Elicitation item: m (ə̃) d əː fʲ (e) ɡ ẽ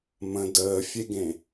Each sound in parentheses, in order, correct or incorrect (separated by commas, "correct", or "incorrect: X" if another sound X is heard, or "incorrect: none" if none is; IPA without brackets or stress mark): correct, correct